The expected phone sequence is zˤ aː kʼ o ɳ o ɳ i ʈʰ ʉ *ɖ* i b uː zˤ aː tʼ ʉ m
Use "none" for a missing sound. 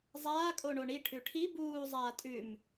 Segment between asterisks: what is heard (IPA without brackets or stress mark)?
ʈʰ